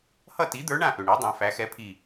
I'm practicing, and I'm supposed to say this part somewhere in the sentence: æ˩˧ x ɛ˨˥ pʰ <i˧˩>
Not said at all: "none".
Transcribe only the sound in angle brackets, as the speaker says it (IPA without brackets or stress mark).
i˧˩